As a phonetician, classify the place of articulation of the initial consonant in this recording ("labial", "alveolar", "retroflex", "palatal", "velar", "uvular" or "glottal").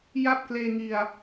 palatal